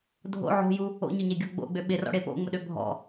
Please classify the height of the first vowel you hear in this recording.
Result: mid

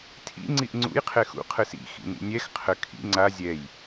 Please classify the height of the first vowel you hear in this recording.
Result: high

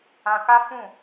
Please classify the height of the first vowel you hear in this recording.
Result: low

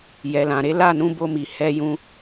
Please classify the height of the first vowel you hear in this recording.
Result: mid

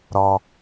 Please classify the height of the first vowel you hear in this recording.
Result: mid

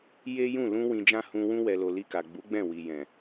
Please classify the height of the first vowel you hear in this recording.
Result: mid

